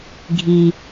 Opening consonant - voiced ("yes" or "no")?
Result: yes